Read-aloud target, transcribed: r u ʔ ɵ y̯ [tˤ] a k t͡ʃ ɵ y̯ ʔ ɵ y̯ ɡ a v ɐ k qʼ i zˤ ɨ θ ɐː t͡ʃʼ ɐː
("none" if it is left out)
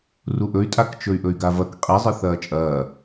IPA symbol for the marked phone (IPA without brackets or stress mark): tʼ